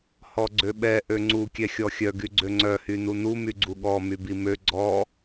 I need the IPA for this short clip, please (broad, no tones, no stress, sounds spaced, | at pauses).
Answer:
h ɔ ɡ͡ǀ ø ɓ ɛ ʔ ø ŋ͡ǀ u kʲ ɛ xʲ ɔ xʲ œ ɡ y ɡ͡ǀ ø ŋ͡ǀ œ h y n u n u m y ɡ͡ǀ u ɠ ɔ m y b i m ø ɡ͡ǀ ɔ